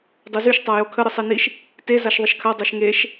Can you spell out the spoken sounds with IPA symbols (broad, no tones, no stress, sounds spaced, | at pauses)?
dˤ ø z y ʃ tˤ a j o kʰ ə ɾ ə sˤ i n i ʃ | t e z a ʃ ðˤ ə ʃ kʰ a dˤ œ ʃ ŋ e ʃ